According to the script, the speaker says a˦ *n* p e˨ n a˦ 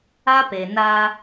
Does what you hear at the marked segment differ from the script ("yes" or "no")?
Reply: yes